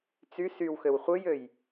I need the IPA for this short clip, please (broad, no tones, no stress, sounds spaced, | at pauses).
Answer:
t͡s y s y w x ø w χʷ ɯ j ø j